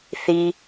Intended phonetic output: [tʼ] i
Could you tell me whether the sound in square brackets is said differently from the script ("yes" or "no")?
yes